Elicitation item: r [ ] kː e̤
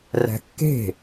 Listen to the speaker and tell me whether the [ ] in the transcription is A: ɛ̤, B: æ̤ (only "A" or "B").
B